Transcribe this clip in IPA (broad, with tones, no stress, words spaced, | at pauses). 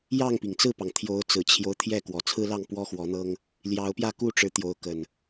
jɑ˥˨ŋpi˩ŋt͡sɹ̩˥˨pɑ˩ŋ t̪ʰjo˨˦ʊ̯ t͡sɹ̩˨˩t͡ɕʰjo˦ʊ̯ t̪ʰjɛ˥˨ kwɔ˨˩t͡sʰɹ̩˦lɑ˥˨ŋ pwɔ˦xwɔ˨˦n̪ɤ˦ŋ | ljɑ˨˦ʊ̯pjä˥˨ ku˥˨ʈ͡ʂɻ̩˨˦ t̪jo˨˦ʊ̯kə˨˩n